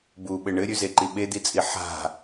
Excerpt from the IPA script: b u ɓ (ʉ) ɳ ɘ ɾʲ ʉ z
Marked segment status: incorrect: ɘ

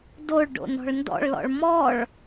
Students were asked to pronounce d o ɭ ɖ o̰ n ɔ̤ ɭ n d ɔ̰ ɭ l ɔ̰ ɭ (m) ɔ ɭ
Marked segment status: correct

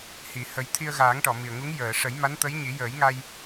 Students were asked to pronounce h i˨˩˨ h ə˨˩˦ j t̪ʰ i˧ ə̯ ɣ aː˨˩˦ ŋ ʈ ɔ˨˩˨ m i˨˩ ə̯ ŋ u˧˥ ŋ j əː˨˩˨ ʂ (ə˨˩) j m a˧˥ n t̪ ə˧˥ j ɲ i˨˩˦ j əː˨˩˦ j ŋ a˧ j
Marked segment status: incorrect: ə˨˩˦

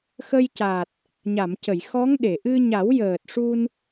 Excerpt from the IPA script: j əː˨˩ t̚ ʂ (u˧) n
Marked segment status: correct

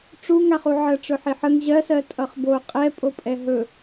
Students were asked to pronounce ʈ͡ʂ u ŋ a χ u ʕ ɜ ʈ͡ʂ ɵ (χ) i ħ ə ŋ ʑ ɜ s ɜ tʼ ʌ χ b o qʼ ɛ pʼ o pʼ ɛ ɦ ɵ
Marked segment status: incorrect: ħ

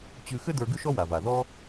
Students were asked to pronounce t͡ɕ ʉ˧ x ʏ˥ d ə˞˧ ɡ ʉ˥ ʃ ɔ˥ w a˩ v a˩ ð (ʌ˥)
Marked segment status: incorrect: ɔ˥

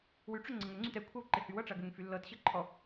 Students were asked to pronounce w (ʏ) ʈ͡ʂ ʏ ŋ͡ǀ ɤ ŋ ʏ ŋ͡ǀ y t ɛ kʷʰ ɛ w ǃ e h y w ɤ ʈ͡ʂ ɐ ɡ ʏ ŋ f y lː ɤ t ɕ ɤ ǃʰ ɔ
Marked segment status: incorrect: y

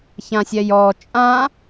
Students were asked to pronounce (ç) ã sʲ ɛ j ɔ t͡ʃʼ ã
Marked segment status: correct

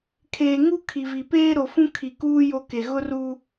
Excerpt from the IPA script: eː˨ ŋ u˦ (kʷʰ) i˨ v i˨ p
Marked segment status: incorrect: kʰ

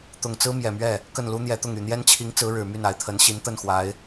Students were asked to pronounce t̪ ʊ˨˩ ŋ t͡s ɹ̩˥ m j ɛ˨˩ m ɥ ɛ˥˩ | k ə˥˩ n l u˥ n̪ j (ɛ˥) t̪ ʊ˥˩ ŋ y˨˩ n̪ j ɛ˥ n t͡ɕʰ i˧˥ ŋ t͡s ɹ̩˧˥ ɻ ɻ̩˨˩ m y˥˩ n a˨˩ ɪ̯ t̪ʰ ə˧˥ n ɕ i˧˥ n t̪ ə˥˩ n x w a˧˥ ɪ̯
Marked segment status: incorrect: ɛ˧˥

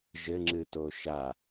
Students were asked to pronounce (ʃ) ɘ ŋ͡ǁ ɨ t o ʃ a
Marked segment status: incorrect: ʒ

